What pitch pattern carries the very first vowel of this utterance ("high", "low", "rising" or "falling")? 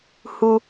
high